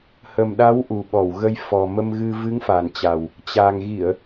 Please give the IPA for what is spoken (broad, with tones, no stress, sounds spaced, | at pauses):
h ə˨˩ m ɗ a˨˦ w ʔ u˨˩ ɓ ɔ˧˩ w ɣ ə˧ j f ɔ˨˩ m ə˧ m ɣ ɨ˧ v ɨ˨˦ ŋ f a˨˩ n t͡ɕ a˨˩ w | t͡ɕ a˨˩ ŋ ɣ i˧˩˨ ə̯